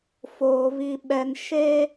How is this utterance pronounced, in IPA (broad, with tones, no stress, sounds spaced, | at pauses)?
f oː˨ β i˨ ɓ ɛ˨ n ʃ e˦